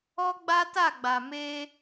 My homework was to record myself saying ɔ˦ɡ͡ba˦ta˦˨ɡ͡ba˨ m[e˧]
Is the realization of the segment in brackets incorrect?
no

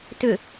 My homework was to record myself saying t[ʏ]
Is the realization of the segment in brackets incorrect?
no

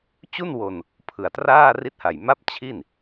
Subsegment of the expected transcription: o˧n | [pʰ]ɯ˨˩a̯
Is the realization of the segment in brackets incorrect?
no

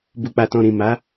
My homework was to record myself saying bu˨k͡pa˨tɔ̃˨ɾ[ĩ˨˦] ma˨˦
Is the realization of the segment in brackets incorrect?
yes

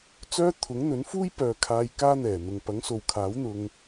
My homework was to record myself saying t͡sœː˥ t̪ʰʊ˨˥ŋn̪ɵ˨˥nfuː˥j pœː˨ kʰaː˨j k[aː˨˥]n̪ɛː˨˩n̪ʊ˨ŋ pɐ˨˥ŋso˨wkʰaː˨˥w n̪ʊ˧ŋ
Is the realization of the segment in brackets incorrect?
yes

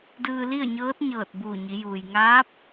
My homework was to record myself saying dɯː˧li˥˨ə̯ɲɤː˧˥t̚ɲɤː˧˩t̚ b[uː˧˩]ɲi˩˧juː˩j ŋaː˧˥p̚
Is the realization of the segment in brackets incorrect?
no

